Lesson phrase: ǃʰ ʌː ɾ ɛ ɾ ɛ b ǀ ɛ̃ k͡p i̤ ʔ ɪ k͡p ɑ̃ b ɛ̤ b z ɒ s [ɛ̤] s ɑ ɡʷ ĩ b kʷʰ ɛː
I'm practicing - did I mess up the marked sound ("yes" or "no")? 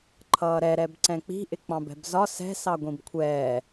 no